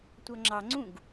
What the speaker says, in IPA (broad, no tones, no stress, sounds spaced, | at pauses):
tʷ ʌ ŋ͡ǁ ɑ ŋ͡ǀ ũ ɡ